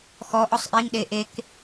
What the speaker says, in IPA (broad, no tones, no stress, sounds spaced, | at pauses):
x ɔ ʔ ɔ sˤ ʔ i ŋ ɗ e ʔ e k